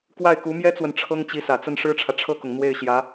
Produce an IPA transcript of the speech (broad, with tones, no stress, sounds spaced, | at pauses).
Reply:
k w a˥˩ ɪ̯ k u˧˥ m j ɛ˥ t͡s w ə˨ n ʈ͡ʂʰ ɤ˥ ŋ t͡ɕ i˧˥ s ä˨˩ t͡s ə˥˩ n ʂ ɻ̩˥ ʈ͡ʂʰ ä˨ ʈ͡ʂʰ ɤ˥˩ k ʊ˩ ŋ n̪ w e˥˩ ɪ̯ ɕ j ä˧˥